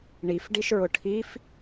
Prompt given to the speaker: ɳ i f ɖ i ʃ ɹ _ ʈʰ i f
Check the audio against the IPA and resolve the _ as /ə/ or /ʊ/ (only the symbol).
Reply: ʊ